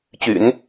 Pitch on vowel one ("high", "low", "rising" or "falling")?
low